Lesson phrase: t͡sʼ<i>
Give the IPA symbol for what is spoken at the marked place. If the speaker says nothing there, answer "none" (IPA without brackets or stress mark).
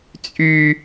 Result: y